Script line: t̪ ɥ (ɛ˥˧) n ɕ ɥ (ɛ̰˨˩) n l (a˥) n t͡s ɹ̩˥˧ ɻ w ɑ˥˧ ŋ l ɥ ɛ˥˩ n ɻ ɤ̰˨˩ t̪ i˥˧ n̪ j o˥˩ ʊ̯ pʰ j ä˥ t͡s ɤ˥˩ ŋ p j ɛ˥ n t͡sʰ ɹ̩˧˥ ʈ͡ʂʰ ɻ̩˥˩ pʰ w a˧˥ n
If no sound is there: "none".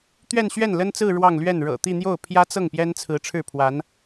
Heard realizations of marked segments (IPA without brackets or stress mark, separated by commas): ɛ˥˧, ɛ˥˩, ə˥